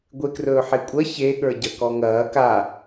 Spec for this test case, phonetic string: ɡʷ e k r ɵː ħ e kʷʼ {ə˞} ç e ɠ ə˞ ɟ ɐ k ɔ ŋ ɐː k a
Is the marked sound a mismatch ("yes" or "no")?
yes